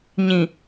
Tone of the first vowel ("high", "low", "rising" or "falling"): low